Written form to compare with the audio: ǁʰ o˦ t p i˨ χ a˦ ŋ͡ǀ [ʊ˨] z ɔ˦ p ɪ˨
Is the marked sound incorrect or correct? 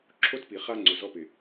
correct